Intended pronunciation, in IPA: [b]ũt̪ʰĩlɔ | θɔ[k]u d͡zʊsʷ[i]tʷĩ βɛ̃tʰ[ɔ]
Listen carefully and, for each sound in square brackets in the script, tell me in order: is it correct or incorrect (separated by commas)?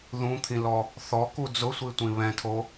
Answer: incorrect, correct, correct, incorrect